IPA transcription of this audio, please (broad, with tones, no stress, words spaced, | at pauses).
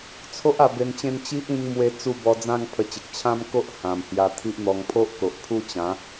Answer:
t͡sʰo˦ʔ a˧be˧nt͡ɕẽ˥˧n t͡ɕi˦ʔĩ˧ŋ mwe˦t͡su˥˧ bɔ˧d͡zã˥˧ŋ pʰə˧t͡ɕe˨k̚ t͡ɕʰã˥˧mko˦ʔ hã˨˩mhja˧ t̪ʰi˦ʔn̪ɔ˧ŋ pʰo˦ʔko˨ʔpʰu˥˧t͡ɕã˨˦